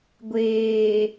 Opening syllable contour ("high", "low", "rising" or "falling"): low